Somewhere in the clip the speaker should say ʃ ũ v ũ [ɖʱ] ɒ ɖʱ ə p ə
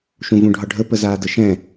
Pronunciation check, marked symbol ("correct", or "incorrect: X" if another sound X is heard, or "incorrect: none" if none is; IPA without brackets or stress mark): correct